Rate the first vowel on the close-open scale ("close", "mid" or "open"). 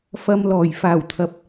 open